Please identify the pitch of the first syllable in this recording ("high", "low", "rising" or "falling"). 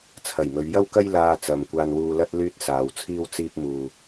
low